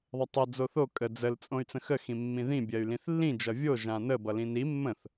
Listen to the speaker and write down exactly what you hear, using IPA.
ðˤ ʌ tˤ ə d͡z o θ o kʼ ə d͡z ə l t͡sʼ õ y̯ t͡s ə̃ x ə x ĩ mː ĩ ð ĩ bʲ ɜ y̯ l ĩ θ lː ĩ d͡ʒ ʌ vʲ o ʒ ã n ə b ʌ l ĩ n i mː ə̃ θ

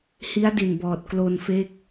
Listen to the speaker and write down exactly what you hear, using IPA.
h i˦˥ a̯ d i˨˩ n b ɔː˨˩ t̚ k l o˧ n f e˦˥ k̚

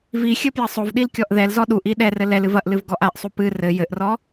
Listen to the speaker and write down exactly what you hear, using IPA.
v i xʲ ɘ p j ɐ sˤ o v ɗ i l kʲ ɔ ʔ ð ɛ l z ɔ ɗ u ʔ i ɗ ɛ r ɘ l ɛ l ɨ v ɐ ʔ l ɨ v ɡ ɔ ʔ a ʔ sˤ u p ɨ r ɘ j ɘ ʔ r ɔ

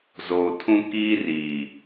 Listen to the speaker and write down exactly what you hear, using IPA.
z oː˨ tʰ ũ˦ k iː˦ r iː˨

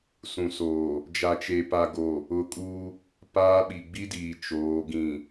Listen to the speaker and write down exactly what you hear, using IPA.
s ũ˨ s oː˨ | d͡ʒ a˨ t͡ʃ e˨ p a˨ ɡ o˨ | ʊ˨ kʼ uː˦ | p aː˦ ɓ i˨ ɡ͡b i˦ d iː˨ t͡ʃ oː˨˦ ɡ ĩ˨

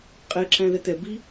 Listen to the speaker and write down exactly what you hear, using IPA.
qʼ ɛ ǁ æ̃ ð ɛ t̪ ɛ b i

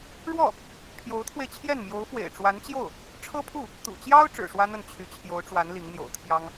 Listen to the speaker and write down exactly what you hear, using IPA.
ɻ w ɔ˥˩ | pʰ j o˧˥ ʊ̯ t̪ʰ w e˧ ɪ̯ t͡ɕʰ j ɛ˥˩ n m j o˧˥ ʊ̯ f w ḛ˨˩ ɪ̯ ʈ͡ʂ w a˧˥ n t͡ɕ j o˥˩ ʊ̯ | ʈ͡ʂʰ ɤ˥ pʰ u˥˩ | t̪ ṵ˨˩ t͡ɕ j ɑ˥ ʊ̯ ʈ͡ʂ ɻ̩˨˩ ʂ w ä˥ n̪ ə˥˩ n t͡ɕʰ y˧˥ t͡ɕʰ j o˧˥ ʊ̯ ʈ͡ʂ w a˧˥ n l i˧˥ ŋ n̪ j o̰˨˩ ʊ̯ t̪ʰ j ɑ˥ ŋ

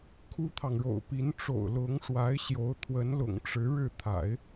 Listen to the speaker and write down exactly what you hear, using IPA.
kʰ u˥ t̪ʰ ɑ˨ ŋ ɻ o̰˨˩ ʊ̯ p i˧˥ n ʈ͡ʂ o̰˨˩ ʊ̯ l ʊ˧˥ ŋ ʂ w a˧˥ ɪ̯ ɕ j o˧˥ ʊ̯ t̪ʰ w ə˧˥ n l ʊ̰˨˩ ŋ ʈ͡ʂ ɻ̩˧˥ ɻ ɻ̩˥˩ t̪ʰ a̰˨˩˦ ɪ̯

